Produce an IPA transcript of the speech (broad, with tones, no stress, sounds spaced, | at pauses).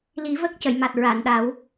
l i˨˩˦ v ə˦˥ k̚ c ə˨˩˨ j m a˨˩ t̚ ɹ a˨˩˨ n ɗ a˨˩˦ w